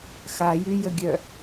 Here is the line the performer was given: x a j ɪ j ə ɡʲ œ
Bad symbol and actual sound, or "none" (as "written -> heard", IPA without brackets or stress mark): ɪ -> y